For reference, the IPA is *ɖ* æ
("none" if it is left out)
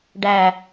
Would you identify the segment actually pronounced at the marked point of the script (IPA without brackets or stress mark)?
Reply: ɖ